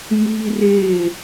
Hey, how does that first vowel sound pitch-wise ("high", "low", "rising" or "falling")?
high